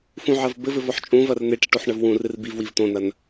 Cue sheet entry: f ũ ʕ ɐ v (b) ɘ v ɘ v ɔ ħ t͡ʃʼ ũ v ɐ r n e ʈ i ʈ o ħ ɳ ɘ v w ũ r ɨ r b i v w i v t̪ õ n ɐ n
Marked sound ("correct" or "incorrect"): correct